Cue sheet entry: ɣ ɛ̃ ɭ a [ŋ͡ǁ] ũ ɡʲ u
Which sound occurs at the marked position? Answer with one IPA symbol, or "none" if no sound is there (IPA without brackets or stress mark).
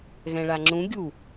ŋ͡ǁ